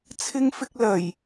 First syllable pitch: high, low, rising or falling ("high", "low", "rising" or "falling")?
high